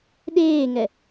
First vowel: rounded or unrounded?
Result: unrounded